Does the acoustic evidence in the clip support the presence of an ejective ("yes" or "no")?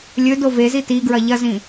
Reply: no